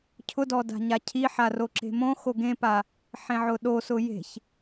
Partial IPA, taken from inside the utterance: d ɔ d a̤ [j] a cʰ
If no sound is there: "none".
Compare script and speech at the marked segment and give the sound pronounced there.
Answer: ɲ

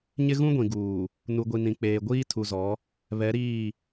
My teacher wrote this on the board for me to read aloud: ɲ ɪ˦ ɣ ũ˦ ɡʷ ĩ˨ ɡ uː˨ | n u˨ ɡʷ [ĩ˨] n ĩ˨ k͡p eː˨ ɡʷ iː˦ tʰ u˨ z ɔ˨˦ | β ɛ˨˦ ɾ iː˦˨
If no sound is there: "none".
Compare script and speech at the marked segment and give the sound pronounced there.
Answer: i˨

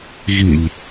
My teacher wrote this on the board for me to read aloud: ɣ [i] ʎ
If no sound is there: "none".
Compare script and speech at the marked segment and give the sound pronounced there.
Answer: i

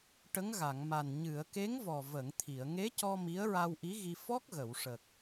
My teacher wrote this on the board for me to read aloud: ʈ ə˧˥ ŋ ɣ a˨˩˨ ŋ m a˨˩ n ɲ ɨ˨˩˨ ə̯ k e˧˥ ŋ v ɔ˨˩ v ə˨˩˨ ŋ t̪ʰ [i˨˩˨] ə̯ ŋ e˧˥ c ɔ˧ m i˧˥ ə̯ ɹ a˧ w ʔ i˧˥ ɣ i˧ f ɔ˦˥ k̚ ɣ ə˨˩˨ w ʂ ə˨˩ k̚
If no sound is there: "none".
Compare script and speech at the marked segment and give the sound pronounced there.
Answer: i˨˩˨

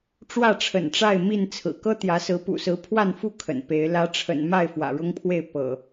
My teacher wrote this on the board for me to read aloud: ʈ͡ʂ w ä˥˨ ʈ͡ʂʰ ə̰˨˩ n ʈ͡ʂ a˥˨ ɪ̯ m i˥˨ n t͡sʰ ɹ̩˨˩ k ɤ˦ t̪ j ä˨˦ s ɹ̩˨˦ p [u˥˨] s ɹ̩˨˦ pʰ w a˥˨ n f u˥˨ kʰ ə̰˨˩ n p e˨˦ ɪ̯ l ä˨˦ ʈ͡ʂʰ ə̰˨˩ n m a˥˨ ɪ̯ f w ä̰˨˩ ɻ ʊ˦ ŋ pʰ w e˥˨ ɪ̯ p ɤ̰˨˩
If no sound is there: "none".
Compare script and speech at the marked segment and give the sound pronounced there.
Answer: ṵ˨˩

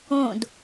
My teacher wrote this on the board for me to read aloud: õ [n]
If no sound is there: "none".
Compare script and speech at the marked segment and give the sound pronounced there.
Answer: d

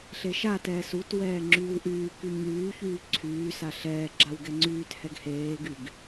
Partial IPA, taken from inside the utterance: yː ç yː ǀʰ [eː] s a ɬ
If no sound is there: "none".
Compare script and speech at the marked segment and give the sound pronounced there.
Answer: yː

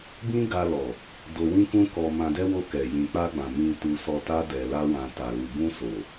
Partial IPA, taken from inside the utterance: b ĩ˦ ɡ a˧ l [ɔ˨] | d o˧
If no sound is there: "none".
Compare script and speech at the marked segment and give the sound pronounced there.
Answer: ɔ˨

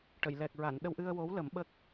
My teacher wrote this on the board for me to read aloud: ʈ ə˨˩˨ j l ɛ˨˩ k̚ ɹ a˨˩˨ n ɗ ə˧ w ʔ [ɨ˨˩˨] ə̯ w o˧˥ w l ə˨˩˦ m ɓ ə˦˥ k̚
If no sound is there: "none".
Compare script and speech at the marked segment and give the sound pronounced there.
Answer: ɨ˧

